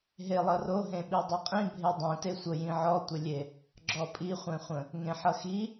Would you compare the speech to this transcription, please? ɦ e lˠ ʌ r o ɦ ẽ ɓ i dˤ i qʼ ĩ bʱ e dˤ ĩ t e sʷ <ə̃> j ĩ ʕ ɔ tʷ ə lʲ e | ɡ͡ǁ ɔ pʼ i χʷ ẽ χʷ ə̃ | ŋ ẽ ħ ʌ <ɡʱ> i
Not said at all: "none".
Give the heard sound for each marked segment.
ə, x

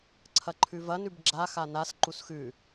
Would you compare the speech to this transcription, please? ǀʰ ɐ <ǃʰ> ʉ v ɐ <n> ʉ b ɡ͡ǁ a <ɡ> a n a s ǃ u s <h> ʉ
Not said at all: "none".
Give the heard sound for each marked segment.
ǃʰ, n, x, x

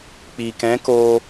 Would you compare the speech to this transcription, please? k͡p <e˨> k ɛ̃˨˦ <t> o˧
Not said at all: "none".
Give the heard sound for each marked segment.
i˨, k

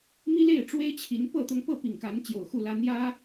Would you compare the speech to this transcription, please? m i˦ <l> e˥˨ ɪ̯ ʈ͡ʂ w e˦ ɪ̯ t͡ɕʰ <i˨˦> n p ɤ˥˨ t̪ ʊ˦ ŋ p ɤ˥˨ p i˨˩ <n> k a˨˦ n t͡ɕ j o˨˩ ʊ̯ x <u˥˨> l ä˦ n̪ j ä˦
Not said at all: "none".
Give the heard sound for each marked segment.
l, i˨˦, ŋ, u˥˨

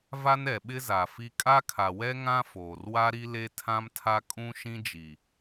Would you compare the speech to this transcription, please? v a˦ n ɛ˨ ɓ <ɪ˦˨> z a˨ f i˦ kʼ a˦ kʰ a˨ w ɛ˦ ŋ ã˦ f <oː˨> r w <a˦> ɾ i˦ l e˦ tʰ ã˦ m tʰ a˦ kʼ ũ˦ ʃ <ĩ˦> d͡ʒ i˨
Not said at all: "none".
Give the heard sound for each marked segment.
ɪ˦, oː˨, a˦, ĩ˦

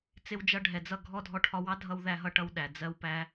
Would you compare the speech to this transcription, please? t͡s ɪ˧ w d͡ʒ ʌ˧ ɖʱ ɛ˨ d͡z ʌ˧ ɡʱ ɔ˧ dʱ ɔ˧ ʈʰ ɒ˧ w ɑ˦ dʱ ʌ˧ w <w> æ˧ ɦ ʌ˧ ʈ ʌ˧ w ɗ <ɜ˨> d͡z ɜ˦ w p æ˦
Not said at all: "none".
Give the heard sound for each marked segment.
ð, æ˨

